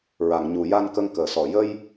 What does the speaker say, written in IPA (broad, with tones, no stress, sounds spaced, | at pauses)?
ɹ a˨˩˨ ŋ ɲ u˨˩˨ j a˧ n k ə˧ ŋ k əː˨˩˨ s ɔ˨˩˨ j ə˧ j